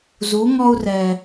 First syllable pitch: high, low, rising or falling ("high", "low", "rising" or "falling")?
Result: rising